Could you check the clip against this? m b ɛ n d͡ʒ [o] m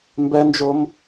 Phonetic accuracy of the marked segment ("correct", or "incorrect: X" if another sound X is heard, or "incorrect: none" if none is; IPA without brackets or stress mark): correct